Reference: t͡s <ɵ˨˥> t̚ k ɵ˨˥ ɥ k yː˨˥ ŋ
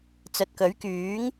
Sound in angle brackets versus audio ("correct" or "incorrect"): incorrect